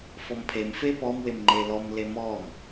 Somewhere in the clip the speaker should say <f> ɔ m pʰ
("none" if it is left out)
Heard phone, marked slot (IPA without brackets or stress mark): f